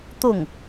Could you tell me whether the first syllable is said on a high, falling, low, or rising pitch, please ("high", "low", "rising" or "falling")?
falling